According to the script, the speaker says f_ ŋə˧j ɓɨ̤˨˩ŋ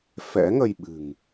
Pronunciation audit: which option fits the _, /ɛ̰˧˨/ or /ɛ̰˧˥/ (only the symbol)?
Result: ɛ̰˧˥